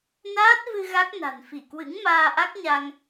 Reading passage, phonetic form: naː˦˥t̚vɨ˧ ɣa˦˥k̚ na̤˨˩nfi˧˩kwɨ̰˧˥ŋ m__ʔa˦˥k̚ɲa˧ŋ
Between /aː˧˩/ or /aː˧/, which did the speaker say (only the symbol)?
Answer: aː˧